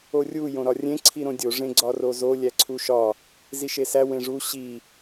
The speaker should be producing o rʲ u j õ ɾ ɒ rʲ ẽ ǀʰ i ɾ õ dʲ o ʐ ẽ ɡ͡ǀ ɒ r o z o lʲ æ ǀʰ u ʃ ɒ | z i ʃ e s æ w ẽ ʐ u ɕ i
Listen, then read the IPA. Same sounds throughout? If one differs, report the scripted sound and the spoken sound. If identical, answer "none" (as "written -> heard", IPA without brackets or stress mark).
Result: none